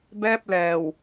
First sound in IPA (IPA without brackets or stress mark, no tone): b